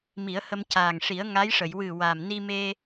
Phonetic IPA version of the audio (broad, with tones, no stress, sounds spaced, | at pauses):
m i˨˩˦ ə̯ h ə˧ m c aː˨˩ ŋ ʂ i˨˩˦ ə̯ ŋ a˧˥ j ʂ ə˨˩˨ j w ɨ˨˩ w a˨˩ m n i˧ m e˧